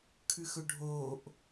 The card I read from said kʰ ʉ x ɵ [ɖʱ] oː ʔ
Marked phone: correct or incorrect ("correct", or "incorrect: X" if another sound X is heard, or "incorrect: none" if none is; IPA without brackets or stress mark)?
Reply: correct